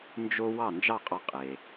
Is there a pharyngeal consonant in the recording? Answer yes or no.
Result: no